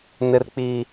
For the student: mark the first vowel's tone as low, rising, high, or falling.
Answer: low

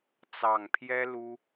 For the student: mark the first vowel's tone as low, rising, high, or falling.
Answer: low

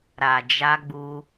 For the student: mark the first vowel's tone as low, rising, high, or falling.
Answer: low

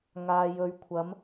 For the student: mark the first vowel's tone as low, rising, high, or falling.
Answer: low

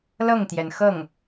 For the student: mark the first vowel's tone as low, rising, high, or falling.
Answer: falling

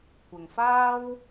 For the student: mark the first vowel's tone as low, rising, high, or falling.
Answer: low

